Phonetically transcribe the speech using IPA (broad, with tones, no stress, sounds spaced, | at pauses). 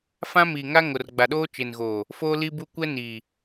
f ã˦ m iː˨ ŋ a˦ ŋ o˨ r ɡ͡b a˨ ɗ oː˦ t͡ʃ e˨ n ɣ oː˨ | f oː˦ l i˦ b u˦ kʷ ɛ˦ n iː˨